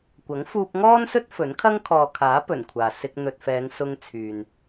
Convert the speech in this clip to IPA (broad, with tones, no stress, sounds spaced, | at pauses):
kʷ ɐ˨˥ ŋ f uː˧ p̚ ŋ ɔː˥ n s ɵ˥ t̚ f ɵ˨˥ n kʰ ɐ˥ ŋ kʰ ɔː˨ kʰ aː˨˥ p ɵ˨˩ n kʷʰ aː˨ s ɪ˧ k̚ n̪ ɵ˨ t̚ f ɛː˨˧ ŋ s ʊ˧ ŋ t͡sʰ yː˨ n